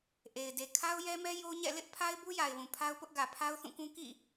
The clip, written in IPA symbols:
ʔe˨ɪ̯de˨ kʰa˦ʊ̯jɛ˦mɛ˦ jo˦ɲɛ̰˦˨ lɪ˦ʔpʰa˦ɪ̯ bu˦ja˨ɪ̯wũ˨ pʰa˦ʊ̯pʊ˦ʔɡä˨ pʰa˦ʊ̯θũ˦˨kũ˦ kḭ˦˨

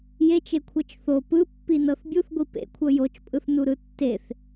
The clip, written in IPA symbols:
jet͡ʃekʷʰɤt͡ʃ θo pɯpːinɤθ bʲuθɡʷi pḛkʷʰɤ jot͡ʃpʼɯθnuɾɯ tːeθ

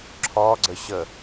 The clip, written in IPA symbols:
ǁʰɔ ɡ͡ǀəɕə

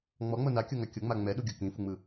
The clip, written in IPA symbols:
ŋ͡mɔŋ͡mɤ nakʲɤŋa kʲɤŋ͡ma ŋ͡mɛɗuɡʲɤ kĩfuŋ͡mɯ

